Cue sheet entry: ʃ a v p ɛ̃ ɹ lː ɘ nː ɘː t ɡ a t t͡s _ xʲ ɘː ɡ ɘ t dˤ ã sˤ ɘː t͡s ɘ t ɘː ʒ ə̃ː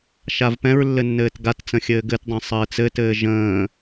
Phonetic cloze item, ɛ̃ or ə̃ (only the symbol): ə̃